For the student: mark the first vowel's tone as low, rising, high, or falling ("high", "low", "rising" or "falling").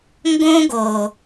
high